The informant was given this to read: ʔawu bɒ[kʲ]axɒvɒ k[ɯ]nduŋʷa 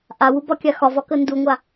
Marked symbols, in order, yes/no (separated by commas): yes, no